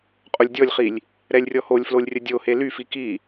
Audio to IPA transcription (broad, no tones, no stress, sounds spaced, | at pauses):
qʼ o lʲ dʲ ɔ lʲ χ i lʲ | ɾ ɛ lʲ rʲ ɔ h o lʲ f l o lʲ rʲ ə dʲ o h e l y f i k i